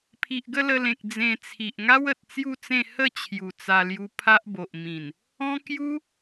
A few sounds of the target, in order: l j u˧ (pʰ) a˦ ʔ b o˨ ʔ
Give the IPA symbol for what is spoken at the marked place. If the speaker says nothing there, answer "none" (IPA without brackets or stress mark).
pʰ